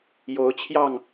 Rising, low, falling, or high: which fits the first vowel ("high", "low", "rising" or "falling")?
rising